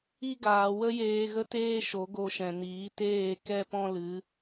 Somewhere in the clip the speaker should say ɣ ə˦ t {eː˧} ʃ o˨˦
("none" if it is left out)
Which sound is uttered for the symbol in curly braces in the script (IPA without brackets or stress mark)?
eː˦